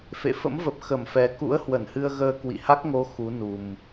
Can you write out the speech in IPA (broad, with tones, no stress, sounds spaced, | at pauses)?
f ḛ˧˨ f ə̰˧˥ m v ə˨˩ p̚ x ə˧˩ m f ɛ˨˩ k ṵ˧˥ ə̯ h w ə˧˩ n h ɨ˧ ə̯ ɣ əː˧ k w ḭ˧˨ h a˦˥ k̚ ŋ o˨˦ x u˨˦ n u˨˩ m